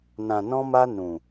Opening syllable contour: low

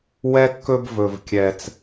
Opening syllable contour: high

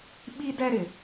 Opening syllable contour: high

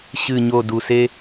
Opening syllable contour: low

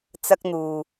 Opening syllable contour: high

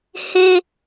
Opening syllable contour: high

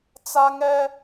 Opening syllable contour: high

